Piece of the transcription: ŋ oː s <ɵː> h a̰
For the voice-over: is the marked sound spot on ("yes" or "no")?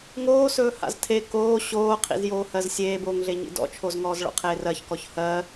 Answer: yes